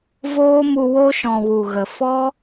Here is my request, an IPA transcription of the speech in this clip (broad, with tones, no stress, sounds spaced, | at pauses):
v oː˦ m u˧ w o˦ ʃ ɔ̃˨ w u˨ ɣ ə˨ f ɔ˦